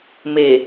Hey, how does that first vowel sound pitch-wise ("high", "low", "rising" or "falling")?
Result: low